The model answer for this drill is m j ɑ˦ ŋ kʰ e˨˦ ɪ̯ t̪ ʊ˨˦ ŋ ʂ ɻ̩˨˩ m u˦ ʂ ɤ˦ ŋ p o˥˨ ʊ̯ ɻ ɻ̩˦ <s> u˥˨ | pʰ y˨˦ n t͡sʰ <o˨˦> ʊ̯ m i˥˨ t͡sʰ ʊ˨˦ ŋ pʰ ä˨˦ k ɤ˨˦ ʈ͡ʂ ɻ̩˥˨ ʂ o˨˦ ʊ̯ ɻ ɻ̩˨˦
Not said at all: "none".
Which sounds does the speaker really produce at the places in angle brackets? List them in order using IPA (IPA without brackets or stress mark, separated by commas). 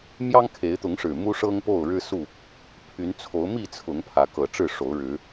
s, o˨˦